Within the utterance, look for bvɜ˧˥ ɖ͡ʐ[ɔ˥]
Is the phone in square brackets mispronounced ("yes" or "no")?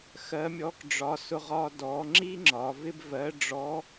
yes